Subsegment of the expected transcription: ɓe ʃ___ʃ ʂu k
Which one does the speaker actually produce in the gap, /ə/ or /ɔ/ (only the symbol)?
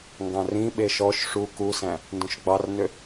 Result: ɔ